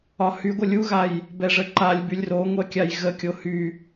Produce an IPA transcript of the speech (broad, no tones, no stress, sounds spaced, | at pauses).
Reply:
ɒ h y ɡʷ ɘ lʲ u ɣ a j | b ɛ ʐ ə ǃ a lʲ b y lʲ r o ŋʷ ɛ kʲ a j ɣ ə kʲ o h y